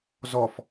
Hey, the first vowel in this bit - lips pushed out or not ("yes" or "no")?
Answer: yes